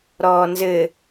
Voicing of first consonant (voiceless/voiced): voiced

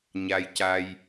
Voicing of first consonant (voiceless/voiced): voiced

